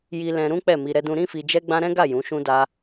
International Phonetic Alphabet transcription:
j i˧ l ɛ̃˧ ɾ ũ˦ k͡p ɛ˦˨ m i˧ ɾ ɛ˦ d ũ˦ ɾ ĩ˦ f i˧ d͡ʒ ɛ˦ ɡ͡b ã˦ ɾ ɛ̃˦ ɡ a˦˨ j ũ˨˦ ʃ ũ˦ d a˦

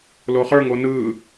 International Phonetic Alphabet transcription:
l o χ ə˞ ŋ o n ɯ

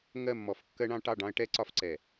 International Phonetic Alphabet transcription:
ŋ ɜ˦˨ mː ɔ˨˦ f kː ɜ˦ ɳ ɑ̃˦ ʈ ɑ˦˨ ɖ ɑ̃˦ ə̯ ʈ ɛ˦ ǀ ɒ˦ f ǀ ɛ˨

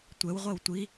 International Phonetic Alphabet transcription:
tʷ ɛ w ʁʷ ɛ w tʷ i

